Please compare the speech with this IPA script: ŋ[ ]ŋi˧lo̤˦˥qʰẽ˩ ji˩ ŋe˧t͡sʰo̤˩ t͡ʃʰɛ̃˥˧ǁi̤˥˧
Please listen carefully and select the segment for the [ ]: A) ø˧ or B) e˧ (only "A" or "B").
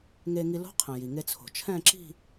B